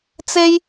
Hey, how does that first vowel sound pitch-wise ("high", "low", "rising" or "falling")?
high